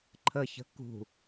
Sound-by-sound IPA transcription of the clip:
ǃʰəçə̤ kṳ

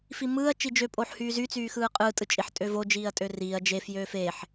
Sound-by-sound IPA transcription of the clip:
fimɯːɐ̯ t͡ʃid͡ʒø pʼoːħhyːzy t͡syːxɯːqʼɯː tʼɯt͡ʃʼiħ tʼøvo d͡ʒiːɐ̯tʼøriːɐ̯ d͡ʒe fjøːfeːħ

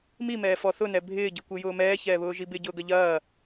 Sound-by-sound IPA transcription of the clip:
mimɛː fɔθʊnɛ bʱɪːɟikʷɪ jʊːmɛːçɛːβʊː ʒibɪ ɟʊːɡɐʎɐː

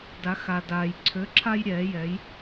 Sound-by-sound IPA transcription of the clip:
da˩˧xa˩daː˩j ǀʰø˨˥ǁʰa˦jɾʲɛː˩˧jɛ˩˧j

